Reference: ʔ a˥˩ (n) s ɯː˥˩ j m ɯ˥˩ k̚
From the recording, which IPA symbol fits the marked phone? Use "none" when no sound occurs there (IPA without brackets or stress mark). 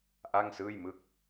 ŋ